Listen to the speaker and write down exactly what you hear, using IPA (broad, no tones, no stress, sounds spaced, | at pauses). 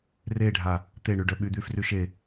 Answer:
r e ɖʱ a | t̪ e ɳ y ɖ œ ɓ y d̪ y f r y ʃ e